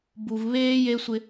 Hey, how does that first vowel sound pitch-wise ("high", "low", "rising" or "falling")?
low